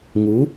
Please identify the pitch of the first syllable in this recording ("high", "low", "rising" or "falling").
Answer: rising